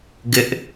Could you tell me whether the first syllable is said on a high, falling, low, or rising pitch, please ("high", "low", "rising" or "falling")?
low